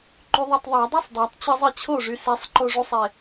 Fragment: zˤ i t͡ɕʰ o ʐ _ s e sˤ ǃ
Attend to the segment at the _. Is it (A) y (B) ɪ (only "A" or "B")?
A